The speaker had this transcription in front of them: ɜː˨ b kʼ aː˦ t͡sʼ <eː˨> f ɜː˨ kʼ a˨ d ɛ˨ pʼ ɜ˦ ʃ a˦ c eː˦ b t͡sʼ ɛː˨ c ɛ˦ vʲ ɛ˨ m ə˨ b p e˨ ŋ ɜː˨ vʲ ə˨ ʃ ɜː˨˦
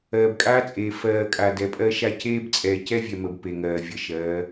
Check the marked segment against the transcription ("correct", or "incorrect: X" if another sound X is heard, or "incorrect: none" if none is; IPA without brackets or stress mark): correct